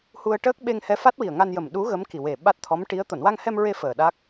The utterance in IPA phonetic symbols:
hu˧ə̯ʈəː˦˥k̚ ɓe˧ŋhɛ˧˥fa˦˥t̚wi˨˩ə̯ ŋa˧njə˨˩mɗu˧˥ ɣə˧˥mki˨˩we˨˩ ɓa˦˥t̚t̪ʰɔ˧˥mʈi˧˥ə̯ t̪o˨˩˨nwa˧ŋhɛ˧mɹe˧ fəː˨˩ɗa˦˥k̚

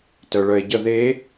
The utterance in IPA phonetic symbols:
tœɭœe̯ɟə ðe

